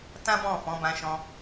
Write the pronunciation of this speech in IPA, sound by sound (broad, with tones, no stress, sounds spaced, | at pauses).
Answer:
t ã˦ b ɔ̃˦˨ f ɔ̃˨˦ b ã˧ ʃ ɔ̃˧